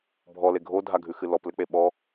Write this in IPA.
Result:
bʱɔle ɡʱodʱaɡʱʉxɨ lɔplɘk͡pe ɓɔ

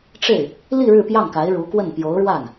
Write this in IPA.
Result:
ʈ͡ʂe˥˩ɪ̯ | li˥˧ ɻɻ̩˥˧pjɑ˥˩ŋka˧˥ɪ̯ ɻu˧˥kwə˥˩n pjo˧˥ʊ̯ɻwa˥˩n

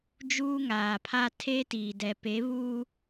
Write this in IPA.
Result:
d͡ʒuː˦ŋaː˨pʰa˦ tʰeː˦tiː˨dɛ˨ pe˨˦βuː˦

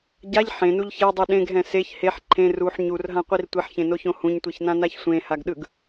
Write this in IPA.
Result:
ɟaʎ ħẽnuʎ çedˤi ɗẽɡɦɛ̃ seç heħ ǃʰẽ ruħ ɲurɦãqʷir tʷiħçẽnoçõ hũɲtʷiçnãnaç sʷẽhaɡɗɯɡ

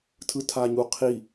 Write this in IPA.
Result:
tʰɯtʰaɲuqʰi

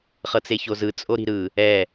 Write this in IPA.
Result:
χɤt͡seçozɯ t͡sʼoɾi̤ɾɯ | ɛ

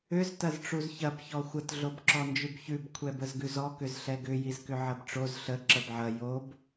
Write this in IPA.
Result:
ʏz tɐzʈ͡ʂuzçɐb çɔxʷət ɮobǁɔnd͡ʒʉbçʉb kʷʰɛbəzɡʉzɔ kʏzɬɛɡʏ jizkʏʕɐbʈ͡ʂoz ɬə ǁəbʕɐ job

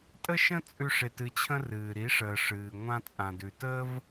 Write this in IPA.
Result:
tʼə˦ʃə̃˦ t͡sʼʉ˦ʂe˧tɨ˧t͡ɕʰə̃˦ rɨː˨ ɾi˨˦ʂəː˨ ʂɨː˨ŋʷã˧ t͡sʼã˨dʉ˨təː˦v

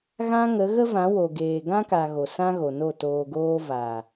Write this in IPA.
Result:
ɣã˦ ŋə˨˦ ɣə˦vã˨˦wo˨ ɡeː˨ɡã˦ka˨ ɣo˨sã˦ɣo˨no˦˨ toː˨ɡoː˧vaː˨

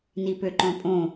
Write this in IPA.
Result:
nipøǃɔ̃pʼõ

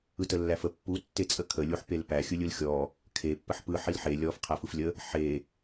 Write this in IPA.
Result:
ɯtəlːæfə pːu tːet͡sʼəkʰə lʲuħpelpæ xʲɯlʲɯlxʲɔ | kʰe pːəħpɯ ħilħe lʲɔf qʰæfɯflʲə | ħe

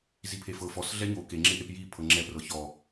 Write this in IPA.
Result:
zipʰefɤ fɔs ɮɛɲo keŋ͡ǁeʔep ji pʰɤŋ͡ǁɛprɤ çɔ

